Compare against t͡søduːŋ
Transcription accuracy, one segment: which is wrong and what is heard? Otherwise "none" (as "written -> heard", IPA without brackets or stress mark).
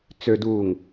none